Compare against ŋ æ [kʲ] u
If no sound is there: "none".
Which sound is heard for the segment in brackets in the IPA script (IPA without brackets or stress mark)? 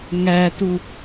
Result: t